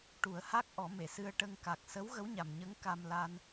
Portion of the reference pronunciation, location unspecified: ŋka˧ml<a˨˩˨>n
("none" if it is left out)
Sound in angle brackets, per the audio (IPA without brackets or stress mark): a˧